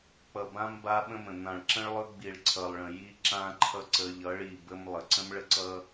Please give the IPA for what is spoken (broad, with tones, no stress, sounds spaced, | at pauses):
k͡p ʌ˨ b ã˦ m b a˦ ɓ ə̃˦ m ə̃˨ n̪ ã˨ ɭ ǁ ə̃˦ ɭ lˠ ɵ˦ ɡ͡b i˨ ɭ ǀʰ ʌ˨ lˠ ɭ ə̃˨ j i˦ ǁ ã˦ ǃʰ ʌ˦ ǀ ə˦ ʎ ʌ˨˦ ɭ i˨ b ə˦ m lˠ ə˨ ǀ ə̃˦ m ɭ ə˦ ǀ ʌ˦